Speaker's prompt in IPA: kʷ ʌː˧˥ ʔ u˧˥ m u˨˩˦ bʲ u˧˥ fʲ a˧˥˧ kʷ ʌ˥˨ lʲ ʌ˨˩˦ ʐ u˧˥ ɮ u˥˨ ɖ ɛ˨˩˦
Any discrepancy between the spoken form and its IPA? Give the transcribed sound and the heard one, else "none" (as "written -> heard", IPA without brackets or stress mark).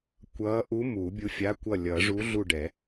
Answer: none